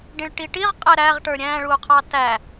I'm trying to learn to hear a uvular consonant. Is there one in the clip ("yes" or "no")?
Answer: yes